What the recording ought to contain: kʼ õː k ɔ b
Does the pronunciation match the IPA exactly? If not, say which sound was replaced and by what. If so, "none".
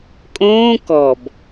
none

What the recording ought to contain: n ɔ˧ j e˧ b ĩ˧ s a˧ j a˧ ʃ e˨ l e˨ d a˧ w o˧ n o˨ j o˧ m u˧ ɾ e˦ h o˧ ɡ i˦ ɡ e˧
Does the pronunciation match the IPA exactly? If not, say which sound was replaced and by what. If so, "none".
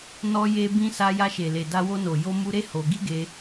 none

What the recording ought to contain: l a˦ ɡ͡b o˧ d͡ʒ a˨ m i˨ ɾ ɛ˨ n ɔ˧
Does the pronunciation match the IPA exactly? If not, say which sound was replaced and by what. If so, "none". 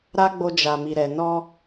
l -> ɾ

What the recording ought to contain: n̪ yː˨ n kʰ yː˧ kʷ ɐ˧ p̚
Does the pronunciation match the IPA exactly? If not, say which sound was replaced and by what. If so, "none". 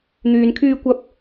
none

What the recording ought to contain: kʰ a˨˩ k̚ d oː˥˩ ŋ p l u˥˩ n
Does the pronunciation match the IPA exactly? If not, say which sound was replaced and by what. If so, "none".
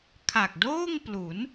u˥˩ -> u˩˦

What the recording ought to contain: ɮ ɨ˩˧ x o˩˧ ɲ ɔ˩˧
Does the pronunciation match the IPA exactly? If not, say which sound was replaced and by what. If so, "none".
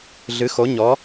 none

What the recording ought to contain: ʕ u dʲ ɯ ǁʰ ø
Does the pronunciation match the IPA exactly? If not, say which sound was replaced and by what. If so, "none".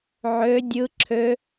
u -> ø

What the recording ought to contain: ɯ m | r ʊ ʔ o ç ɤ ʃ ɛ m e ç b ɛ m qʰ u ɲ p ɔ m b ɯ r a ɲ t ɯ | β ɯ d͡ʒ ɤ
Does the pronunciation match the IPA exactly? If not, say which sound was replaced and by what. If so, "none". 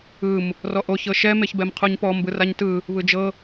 ʊ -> ɔ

